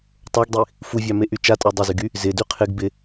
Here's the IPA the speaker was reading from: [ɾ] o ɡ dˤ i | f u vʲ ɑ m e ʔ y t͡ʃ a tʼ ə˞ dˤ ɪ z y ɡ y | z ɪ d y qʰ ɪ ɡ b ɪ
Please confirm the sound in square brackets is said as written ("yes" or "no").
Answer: no